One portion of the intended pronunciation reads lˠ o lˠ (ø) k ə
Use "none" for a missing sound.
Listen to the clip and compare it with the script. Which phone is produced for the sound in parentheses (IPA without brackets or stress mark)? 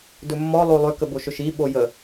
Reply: ø